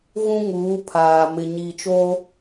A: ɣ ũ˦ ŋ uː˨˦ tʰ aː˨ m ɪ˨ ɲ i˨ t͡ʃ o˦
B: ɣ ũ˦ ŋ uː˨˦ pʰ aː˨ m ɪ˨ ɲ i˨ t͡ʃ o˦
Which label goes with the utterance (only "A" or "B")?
B